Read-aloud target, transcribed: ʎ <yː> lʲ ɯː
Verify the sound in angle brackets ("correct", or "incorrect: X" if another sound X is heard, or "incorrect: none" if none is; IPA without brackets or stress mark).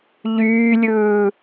correct